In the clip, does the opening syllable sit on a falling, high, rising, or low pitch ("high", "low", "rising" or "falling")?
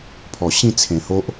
low